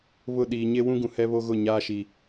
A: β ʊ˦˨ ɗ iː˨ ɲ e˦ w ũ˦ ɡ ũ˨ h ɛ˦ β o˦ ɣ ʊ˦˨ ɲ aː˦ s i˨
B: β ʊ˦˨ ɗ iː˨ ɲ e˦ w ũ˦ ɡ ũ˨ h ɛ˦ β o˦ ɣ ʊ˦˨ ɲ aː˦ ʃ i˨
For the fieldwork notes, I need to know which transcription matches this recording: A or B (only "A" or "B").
B